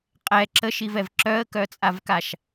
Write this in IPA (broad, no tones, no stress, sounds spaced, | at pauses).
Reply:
qʼ ɛ ǁ ə ʃ i v ɛ v ǁ œ ə̯ k œ t͡sʼ a v k a ʃ